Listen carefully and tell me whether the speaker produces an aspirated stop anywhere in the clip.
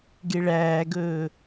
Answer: no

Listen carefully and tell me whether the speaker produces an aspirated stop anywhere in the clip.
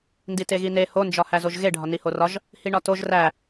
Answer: no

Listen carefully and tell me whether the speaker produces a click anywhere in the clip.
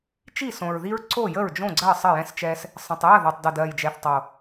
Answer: yes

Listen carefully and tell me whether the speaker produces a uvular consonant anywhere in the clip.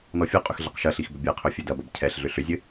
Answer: yes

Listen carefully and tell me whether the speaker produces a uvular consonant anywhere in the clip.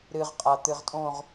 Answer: yes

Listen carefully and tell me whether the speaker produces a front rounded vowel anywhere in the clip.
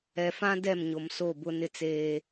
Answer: no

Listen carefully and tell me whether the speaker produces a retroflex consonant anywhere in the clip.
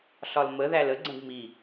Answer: no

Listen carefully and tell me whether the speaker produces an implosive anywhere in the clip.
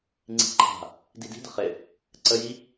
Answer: no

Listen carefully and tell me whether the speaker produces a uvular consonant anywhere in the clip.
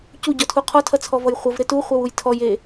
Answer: yes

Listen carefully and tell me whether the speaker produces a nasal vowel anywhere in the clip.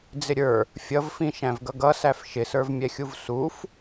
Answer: yes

